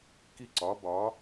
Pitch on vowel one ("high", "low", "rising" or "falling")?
falling